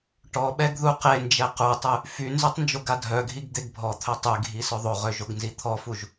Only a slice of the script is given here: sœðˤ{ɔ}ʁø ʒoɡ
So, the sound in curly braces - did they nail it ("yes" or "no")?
no